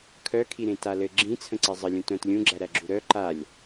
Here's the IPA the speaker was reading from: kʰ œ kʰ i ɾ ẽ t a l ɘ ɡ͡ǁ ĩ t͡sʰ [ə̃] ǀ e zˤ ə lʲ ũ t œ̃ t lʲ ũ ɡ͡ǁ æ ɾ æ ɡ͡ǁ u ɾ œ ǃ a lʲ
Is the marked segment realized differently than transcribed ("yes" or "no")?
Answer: no